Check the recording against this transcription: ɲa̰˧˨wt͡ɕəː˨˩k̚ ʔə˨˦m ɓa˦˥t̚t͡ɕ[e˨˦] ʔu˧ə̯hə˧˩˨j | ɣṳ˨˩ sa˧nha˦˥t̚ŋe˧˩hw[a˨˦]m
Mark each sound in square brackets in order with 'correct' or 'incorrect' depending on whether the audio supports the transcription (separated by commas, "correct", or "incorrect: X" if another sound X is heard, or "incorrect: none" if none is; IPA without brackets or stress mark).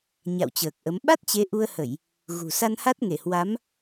correct, correct